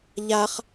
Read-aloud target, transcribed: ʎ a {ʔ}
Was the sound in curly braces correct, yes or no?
no